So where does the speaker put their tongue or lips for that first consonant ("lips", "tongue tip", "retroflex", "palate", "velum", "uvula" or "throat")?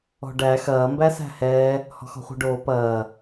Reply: retroflex